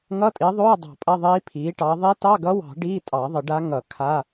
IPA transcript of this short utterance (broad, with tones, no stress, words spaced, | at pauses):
ŋʌ˧˥˧tʼi˩˥ðˤoː˧˥˧ dˤɑ̤˨˩˦pʼɐ˧˥˧ðˤiː˧˥ pʰiː˩˥ʈɑ˩˥ ðˤi˧˥tɑ˧˥˧ɡʌ˧˥wɑ̤˨˩˦ ɖiː˧˥˧tʼɑ˨˩˦ðˤə˨˩˦ ɖa˧˥ ŋʌ˨˩˦ kʰa˧˥˧